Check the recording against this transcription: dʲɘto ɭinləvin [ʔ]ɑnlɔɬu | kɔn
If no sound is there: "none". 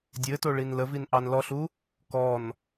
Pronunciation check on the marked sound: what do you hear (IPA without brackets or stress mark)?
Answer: ʔ